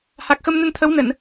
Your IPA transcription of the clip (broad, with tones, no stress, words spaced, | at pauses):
ha˨˩k̚xə˧mnə˧n t̪ʰə˨˦wnə˧˩˨n